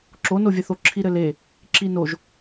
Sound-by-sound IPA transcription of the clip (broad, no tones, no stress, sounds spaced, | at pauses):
ǁ o n o vʲ ɛ θ o ǁʰ i ɾ ɘ l e | ǁ i n o ʒ